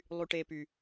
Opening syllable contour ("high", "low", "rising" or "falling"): low